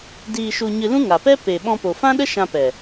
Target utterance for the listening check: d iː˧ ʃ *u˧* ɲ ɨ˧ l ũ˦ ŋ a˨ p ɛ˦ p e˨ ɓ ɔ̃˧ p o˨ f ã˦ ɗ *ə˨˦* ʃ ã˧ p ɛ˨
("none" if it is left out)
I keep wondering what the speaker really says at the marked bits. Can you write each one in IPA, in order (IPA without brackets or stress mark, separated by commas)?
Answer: u˧, ə˦